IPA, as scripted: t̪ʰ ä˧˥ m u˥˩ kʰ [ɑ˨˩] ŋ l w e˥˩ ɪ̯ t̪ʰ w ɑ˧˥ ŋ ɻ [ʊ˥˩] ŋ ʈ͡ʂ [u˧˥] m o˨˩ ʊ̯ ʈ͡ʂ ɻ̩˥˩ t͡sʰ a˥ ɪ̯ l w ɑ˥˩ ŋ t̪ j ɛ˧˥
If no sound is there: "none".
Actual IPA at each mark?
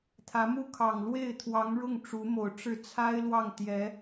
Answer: ɑ˨˩, ʊ˥˩, u˧˥

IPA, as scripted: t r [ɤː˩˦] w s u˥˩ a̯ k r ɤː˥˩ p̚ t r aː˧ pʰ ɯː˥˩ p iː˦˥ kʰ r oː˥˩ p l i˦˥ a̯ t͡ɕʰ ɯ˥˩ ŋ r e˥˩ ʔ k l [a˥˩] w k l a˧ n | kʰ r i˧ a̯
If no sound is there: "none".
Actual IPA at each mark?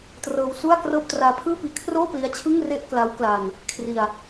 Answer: ɤː˧, a˦˥

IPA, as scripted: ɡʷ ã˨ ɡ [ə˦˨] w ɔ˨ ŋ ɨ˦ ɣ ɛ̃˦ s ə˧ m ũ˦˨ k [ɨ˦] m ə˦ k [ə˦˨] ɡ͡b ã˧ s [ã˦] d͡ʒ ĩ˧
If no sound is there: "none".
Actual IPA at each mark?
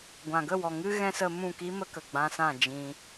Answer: ə˦˨, i˦, ə˨, ã˦˨

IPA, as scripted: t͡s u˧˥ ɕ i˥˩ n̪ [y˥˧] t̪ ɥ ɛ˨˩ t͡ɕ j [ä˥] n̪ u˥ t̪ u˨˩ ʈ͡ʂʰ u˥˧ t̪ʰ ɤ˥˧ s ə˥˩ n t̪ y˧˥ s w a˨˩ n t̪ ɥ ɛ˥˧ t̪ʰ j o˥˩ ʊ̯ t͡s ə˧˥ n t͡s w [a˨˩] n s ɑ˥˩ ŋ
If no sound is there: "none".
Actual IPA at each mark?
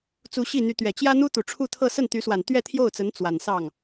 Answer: y˧˥, ä˥, a˨˩

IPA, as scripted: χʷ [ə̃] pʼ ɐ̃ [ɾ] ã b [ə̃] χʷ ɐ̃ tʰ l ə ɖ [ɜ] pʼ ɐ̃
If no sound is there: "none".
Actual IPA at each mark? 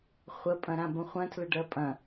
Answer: ə, ɾ, ə̃, ɜ

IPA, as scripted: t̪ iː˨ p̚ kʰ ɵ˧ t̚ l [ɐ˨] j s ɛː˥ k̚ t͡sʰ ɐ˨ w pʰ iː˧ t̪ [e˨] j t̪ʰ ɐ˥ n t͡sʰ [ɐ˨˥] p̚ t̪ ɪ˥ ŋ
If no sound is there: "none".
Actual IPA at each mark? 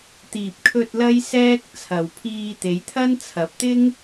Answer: ɐ˥, e˨˧, ɐ˨˥

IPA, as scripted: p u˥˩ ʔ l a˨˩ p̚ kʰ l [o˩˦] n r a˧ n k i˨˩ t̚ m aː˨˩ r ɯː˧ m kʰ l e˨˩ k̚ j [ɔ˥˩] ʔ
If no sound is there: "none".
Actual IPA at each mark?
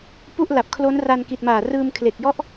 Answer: o˦˥, ɔ˥˩

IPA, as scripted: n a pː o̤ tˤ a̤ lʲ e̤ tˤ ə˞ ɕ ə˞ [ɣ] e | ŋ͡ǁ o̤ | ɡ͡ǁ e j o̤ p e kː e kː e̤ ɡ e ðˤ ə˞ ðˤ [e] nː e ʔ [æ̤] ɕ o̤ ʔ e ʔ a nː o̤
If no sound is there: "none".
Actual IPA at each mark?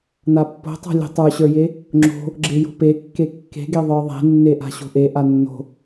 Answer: j, e̤, a̤

